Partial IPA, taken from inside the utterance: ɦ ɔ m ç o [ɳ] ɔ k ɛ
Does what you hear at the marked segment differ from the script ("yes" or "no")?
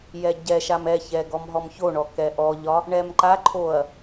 no